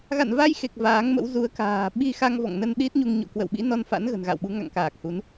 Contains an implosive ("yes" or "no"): yes